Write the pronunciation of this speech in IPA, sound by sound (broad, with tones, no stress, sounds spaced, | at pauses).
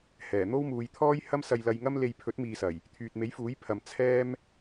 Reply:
h ɛː˨˩ n̪ o˥ w m uː˨˧ j t̪ʰ ɔː˥ j h ɐ˥ m s ɐ˧ j l ɐ˧ j ŋ ɐ˥ m l e˧ j pʰ ɵ˨˥ t̚ m iː˨ s ɐ˨˩ j | t̪ʰ yː˨ t̚ m e˨˥ j f uː˨˥ j pʰ ɐ˨ m t͡sʰ ɛː˥ m